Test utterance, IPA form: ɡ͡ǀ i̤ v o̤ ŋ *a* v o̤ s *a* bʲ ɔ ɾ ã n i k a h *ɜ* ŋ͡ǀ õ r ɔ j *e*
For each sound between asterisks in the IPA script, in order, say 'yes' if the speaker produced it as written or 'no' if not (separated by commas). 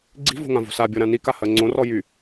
no, yes, yes, no